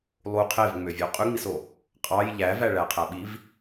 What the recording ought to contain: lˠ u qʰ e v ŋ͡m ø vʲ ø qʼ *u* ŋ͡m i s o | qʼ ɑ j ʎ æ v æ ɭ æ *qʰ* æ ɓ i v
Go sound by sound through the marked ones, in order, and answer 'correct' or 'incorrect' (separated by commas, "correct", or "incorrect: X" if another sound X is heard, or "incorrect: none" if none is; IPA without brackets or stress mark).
incorrect: y, correct